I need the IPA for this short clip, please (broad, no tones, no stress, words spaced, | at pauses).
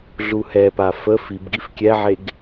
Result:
ɮuhɛpa fə fibɡif kʲɛʕeɡ